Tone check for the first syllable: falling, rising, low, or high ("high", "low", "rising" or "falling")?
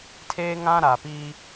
high